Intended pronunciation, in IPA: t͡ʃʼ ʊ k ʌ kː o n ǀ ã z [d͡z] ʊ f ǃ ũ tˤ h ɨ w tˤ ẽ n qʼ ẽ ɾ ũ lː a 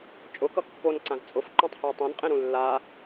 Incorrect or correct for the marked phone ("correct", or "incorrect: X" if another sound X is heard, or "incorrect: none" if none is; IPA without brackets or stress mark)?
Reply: incorrect: t͡sʼ